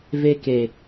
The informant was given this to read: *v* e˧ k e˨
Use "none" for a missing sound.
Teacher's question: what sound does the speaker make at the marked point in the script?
v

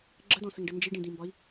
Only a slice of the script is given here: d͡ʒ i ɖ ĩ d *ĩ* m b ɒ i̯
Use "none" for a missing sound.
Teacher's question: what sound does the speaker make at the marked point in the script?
ĩ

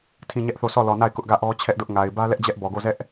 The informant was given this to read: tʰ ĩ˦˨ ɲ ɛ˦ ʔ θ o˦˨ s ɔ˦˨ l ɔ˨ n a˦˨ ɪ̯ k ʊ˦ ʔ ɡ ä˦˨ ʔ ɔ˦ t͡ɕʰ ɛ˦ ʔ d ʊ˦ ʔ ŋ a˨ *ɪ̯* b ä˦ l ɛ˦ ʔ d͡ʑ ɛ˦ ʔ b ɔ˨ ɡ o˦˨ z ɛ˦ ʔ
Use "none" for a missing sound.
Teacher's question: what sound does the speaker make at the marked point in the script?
ɪ̯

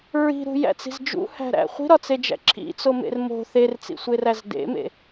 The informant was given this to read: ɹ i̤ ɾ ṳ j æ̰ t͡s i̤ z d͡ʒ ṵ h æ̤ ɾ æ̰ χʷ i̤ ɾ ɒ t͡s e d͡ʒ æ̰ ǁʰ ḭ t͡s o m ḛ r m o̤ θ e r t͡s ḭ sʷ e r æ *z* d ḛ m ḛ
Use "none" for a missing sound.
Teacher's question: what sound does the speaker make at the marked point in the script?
z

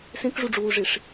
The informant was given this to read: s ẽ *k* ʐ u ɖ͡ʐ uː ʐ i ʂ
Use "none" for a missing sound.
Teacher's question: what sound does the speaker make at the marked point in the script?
k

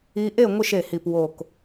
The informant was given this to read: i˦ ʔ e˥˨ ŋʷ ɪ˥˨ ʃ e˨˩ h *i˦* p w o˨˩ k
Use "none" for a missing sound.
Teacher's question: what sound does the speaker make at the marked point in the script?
i˨˩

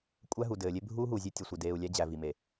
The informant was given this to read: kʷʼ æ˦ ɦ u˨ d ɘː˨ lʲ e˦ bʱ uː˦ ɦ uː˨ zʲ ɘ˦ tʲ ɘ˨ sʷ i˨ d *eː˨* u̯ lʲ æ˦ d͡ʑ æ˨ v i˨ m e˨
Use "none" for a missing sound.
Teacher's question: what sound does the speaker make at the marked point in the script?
eː˨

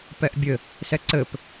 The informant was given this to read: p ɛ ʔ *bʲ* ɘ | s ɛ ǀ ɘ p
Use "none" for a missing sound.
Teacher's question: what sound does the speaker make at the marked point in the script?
bʲ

